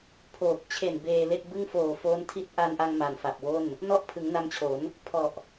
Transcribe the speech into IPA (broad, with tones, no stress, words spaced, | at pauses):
pʰoː˨˩k̚ t͡ɕʰe˨˩n beː˧le˥˩k̚ bɯ˥˩ŋfoː˨˩foː˦˥n tʰi˦˥t̚ʔa˧nʔa˧ŋ ma˨˩nfa˨˩p̚wo˥˩n | nɔ˥˩ʔ pʰɯ˩˦ŋna˧mt͡ɕʰo˩˦n | pʰɔ˨˩ʔ